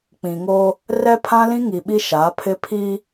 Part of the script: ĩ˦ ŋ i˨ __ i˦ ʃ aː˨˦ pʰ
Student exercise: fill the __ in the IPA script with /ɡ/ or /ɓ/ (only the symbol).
ɓ